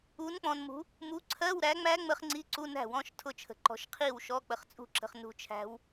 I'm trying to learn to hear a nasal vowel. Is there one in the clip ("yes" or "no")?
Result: yes